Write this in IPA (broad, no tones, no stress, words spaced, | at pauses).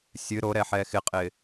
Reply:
sʲɨ ɾoɾɛ ħɛxɪqʼɪ